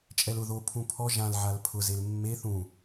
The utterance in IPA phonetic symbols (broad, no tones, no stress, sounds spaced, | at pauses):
t͡ʃʼ ɛ l ʊ ð o pʰ ũ pʰ ɔ ʒ ã l ʕ a l pʰ ʊ z e l mː e θ ũ